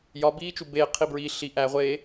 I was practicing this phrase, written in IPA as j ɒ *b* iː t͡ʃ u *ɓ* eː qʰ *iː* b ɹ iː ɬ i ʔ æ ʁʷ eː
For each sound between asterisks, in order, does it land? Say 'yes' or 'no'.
yes, no, no

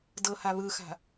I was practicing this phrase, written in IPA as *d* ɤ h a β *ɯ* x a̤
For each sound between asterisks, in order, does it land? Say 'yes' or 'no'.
yes, yes

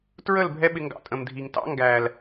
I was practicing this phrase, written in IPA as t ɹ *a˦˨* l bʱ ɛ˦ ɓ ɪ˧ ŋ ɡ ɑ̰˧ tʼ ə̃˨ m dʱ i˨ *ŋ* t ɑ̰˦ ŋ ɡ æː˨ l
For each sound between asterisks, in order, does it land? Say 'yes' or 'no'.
no, yes

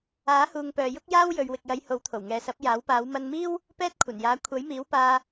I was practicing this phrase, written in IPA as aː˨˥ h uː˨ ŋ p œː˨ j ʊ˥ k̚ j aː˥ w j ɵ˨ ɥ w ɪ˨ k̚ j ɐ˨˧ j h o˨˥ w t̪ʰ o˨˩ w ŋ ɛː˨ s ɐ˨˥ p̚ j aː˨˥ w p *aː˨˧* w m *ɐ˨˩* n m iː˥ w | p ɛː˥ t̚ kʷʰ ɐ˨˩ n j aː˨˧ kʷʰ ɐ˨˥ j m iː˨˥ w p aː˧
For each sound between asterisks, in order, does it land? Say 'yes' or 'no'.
yes, no

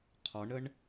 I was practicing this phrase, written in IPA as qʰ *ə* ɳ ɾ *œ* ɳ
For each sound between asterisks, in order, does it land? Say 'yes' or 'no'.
no, no

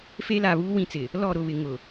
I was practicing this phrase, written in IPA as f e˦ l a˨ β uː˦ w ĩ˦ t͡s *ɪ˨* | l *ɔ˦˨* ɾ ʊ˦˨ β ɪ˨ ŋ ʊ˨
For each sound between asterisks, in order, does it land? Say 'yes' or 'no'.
yes, yes

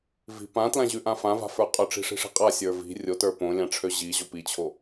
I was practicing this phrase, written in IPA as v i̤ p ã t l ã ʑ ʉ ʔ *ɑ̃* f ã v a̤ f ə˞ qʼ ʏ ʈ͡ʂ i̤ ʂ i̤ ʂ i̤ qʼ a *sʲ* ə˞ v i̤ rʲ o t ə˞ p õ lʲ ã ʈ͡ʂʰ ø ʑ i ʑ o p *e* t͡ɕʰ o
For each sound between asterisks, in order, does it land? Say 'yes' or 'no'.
no, yes, no

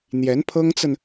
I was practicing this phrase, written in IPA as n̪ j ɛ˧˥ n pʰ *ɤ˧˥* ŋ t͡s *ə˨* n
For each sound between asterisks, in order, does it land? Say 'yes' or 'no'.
no, yes

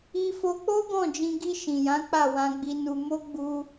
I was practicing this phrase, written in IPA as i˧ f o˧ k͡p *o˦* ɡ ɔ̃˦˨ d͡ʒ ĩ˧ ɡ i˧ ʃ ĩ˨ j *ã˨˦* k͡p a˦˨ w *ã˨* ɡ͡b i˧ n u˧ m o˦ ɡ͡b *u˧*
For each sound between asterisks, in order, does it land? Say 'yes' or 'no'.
yes, yes, no, yes

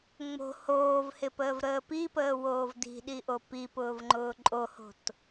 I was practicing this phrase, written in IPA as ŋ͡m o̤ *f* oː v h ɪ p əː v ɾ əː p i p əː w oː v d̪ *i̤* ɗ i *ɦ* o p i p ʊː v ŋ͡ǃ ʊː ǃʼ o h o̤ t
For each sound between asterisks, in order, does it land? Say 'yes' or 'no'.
no, yes, no

